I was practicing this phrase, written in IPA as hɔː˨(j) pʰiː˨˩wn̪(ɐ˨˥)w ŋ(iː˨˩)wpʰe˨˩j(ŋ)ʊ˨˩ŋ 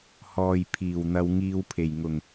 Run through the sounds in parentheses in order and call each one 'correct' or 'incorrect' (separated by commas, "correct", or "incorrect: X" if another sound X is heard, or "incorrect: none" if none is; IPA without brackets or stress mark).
correct, incorrect: ɐ˧, incorrect: iː˧, correct